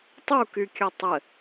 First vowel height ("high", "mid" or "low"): high